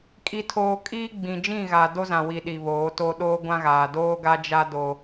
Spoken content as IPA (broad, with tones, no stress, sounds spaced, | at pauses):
kʼ i˨ tʰ oː˨ kʼ iː˦ ɡ͡b ĩ˨ d͡ʒ ĩ˦˨ ɣ a˨ d o˦ z ã˨ w i˨ ɗ i˨ β oː˨˦ t o˦ ɗ oː˦ ɡʷ ã˦ ɣ aː˨ d oː˦ ɡ a˦ d͡ʒ a˦ d o˦